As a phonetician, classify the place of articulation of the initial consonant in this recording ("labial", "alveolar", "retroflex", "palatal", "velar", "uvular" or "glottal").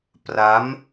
labial